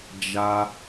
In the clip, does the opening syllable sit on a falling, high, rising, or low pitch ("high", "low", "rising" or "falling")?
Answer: high